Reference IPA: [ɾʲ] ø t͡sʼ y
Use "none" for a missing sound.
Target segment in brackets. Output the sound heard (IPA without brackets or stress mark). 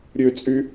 ɾʲ